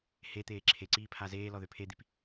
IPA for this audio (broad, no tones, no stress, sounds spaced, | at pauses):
h e t̪ eː ǁʰ e ǀ iː pʰ a z eː l ɔ ð ø pʰ e d̪ i p